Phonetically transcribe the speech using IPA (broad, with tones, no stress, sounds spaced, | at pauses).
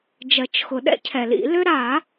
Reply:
d͡ʒ ɜ˨˩˦ t͡ʃ x ʊ˨˩˦ ɗ ɛ̰˥ cʰ ɛ˨˩˦ l ḭ˨˩˦ l ʏ˥ ɾ a˨˩˦